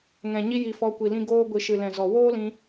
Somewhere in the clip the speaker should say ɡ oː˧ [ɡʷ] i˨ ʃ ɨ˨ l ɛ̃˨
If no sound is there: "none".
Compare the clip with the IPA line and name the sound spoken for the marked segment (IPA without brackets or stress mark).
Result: ɡʷ